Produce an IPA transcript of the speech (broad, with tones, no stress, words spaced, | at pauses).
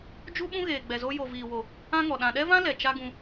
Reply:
d͡ʒu˦ ɓũ˦ɣeː˨ɡ͡bɛ˨ zo˧ jo˨viː˨wo˨ | ã˦ŋɔ˨ ɗã˨ɗɛ˦vã˦ lɛ˨t͡ʃa˦ɡũ˧